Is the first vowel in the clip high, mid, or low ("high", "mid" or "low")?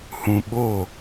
high